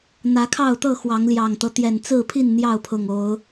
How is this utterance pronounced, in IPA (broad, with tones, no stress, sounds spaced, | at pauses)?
n̪ ä˨˦ kʰ ɑ˥˨ ʊ̯ t̪ ɤ˥˨ x w ɑ˨˦ ŋ l j ɑ˨˩ ŋ t̪ ɤ˦ t̪ j ɛ˨˩ n t͡s ɹ̩˥˨ pʰ i˥˨ n n̪ j ɑ˥˨ ʊ̯ pʰ ʊ˨˩ ŋ o˨˦ ʊ̯